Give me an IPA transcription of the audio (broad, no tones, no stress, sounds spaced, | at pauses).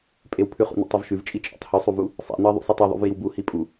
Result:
pʼ e w pʰ ʉ χ ṵ n ḭ tˤ ɤ v ʃ ʉ v t͡ʃʼ i t͡ʃʼ ḛ tˤ h ʉ sˤ u v u | sˤ ḭ n ɤ ɪ̯ ðˤ ṵ sˤ u tˤ i ðˤ ṵ v j i w b u h i pʼ u